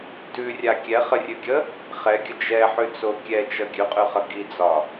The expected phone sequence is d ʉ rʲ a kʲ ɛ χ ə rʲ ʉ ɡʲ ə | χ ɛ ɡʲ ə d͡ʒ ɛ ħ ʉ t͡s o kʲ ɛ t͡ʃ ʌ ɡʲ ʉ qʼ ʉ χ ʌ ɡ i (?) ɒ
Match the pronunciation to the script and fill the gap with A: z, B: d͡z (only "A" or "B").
B